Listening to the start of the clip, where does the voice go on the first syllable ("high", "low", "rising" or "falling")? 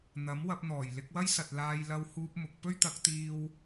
rising